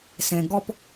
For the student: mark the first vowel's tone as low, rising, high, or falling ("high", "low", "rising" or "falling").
low